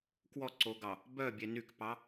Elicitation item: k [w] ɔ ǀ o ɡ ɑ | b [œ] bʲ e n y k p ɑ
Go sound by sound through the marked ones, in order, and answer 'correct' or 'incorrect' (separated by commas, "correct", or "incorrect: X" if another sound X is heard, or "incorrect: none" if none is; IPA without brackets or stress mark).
correct, correct